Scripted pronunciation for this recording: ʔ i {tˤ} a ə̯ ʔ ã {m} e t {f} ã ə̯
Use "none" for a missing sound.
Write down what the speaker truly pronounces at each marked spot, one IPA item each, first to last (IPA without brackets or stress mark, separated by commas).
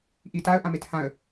t, m, h